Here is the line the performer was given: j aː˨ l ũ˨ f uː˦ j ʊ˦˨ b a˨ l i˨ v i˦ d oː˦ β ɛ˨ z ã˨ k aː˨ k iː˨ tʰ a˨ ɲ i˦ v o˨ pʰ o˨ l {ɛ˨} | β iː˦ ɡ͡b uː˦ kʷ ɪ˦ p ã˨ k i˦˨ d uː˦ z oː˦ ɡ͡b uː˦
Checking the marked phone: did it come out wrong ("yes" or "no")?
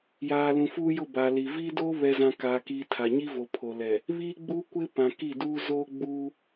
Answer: no